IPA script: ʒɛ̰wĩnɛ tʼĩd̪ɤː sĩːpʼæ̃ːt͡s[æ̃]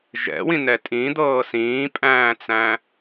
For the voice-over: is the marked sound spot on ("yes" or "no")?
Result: yes